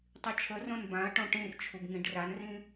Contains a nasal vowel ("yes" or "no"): yes